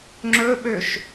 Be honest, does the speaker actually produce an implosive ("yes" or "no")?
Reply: yes